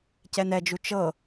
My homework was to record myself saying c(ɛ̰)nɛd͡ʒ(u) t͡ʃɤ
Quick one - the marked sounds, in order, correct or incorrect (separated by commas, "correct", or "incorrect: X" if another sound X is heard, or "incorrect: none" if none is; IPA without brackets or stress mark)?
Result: incorrect: ɛ, correct